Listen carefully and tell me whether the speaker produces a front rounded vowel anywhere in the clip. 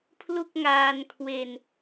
no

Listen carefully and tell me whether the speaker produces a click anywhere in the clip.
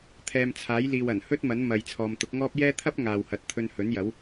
no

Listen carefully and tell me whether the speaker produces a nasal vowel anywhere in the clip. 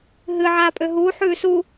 no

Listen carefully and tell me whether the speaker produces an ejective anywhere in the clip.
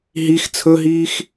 no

